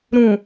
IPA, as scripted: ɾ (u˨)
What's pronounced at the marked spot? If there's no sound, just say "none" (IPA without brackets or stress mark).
ũ˨